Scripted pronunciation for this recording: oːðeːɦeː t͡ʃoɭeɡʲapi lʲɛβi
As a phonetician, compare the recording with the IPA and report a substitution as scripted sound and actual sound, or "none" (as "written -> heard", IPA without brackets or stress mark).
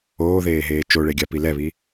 lʲ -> l